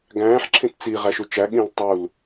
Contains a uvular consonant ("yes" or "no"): yes